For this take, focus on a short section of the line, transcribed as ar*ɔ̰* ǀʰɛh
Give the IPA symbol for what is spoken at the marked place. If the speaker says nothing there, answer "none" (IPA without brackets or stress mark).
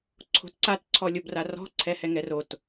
ɔ̤